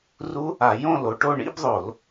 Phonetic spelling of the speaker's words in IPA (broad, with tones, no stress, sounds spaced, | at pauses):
r u˦˥ | a˧˩˧ j õ˥˧ l o˨˦ ʈ o˥˧ ɳ ḭ˥˧ b ðˤ o˧˩˧ l